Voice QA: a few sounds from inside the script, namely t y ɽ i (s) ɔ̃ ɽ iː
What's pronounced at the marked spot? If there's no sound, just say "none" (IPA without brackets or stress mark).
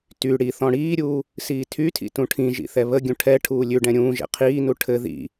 θ